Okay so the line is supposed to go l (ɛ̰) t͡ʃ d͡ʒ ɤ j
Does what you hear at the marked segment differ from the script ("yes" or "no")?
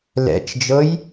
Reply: no